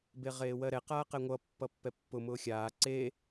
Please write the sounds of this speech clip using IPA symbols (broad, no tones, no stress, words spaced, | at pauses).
beʁeːwɜɾɛ qaːqɛŋʷʌ pːʌpːɛpːʊ mʊːxʲaː ǀe